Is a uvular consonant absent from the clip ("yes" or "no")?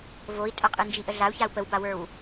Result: no